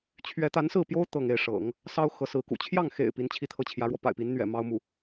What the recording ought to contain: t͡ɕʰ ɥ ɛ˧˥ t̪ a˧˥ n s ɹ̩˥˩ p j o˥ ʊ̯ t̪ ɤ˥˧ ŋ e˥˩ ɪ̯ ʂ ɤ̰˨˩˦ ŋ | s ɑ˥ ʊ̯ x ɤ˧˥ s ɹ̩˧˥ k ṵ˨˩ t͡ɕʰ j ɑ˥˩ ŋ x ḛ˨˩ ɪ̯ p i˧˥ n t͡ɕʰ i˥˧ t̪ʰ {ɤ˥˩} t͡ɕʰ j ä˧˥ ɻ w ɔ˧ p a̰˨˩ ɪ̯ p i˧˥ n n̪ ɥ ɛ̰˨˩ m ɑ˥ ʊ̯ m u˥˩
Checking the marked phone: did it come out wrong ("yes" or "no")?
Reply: no